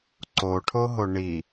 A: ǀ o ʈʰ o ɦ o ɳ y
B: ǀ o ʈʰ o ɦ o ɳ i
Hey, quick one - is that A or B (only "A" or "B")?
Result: B